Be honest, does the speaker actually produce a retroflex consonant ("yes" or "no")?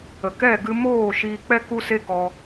no